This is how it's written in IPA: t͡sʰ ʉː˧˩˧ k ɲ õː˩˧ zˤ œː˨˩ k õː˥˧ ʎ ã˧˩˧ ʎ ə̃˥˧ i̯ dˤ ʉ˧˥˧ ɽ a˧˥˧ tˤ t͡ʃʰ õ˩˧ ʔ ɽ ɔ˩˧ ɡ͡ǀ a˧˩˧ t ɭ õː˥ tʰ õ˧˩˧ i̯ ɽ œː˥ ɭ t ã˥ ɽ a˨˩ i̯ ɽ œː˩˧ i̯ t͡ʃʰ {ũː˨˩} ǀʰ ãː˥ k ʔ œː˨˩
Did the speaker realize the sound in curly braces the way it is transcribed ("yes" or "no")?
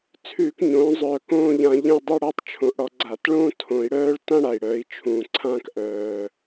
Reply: yes